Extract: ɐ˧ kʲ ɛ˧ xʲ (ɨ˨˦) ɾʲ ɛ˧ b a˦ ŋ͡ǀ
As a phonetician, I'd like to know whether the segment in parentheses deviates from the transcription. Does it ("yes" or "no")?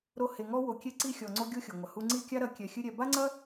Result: yes